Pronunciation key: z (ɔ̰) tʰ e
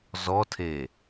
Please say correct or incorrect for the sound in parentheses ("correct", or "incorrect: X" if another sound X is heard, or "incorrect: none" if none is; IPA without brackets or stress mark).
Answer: incorrect: ɔ